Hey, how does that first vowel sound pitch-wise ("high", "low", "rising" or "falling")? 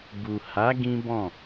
low